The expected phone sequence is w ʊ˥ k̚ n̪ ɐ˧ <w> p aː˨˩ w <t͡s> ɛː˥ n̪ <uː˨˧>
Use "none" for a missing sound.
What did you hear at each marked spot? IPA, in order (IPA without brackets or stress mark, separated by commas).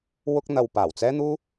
w, t͡s, uː˥